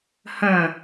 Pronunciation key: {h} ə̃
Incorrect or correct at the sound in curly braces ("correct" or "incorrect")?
correct